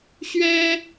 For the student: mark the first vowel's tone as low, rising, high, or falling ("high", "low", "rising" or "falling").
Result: high